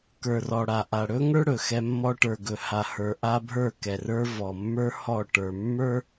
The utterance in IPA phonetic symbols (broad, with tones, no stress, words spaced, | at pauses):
kə˞˨rɔ˨ɽa˨ʔa˨ ɽɵ˦ŋə˞˦ ɽɵ˨xɛ˦mːɔ˦ ʈə˞˨ɡɵ˨ha˨ hə˞˨ʔa˦bʱə˞˦˨ kɛ˨rə˞˦ vɔ˨mːə˞˦ hɔ˦˨ ʈə˞˨mːə˞˦